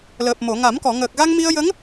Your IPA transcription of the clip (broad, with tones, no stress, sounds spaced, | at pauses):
l əː˨˩ p̚ m o˨˩˨ ŋ a˨˩˦ m k ɔ˨˩˨ ŋ əː˨˩ k̚ ɣ a˧ ŋ m i˧ ə̯ j ə˧˥ ŋ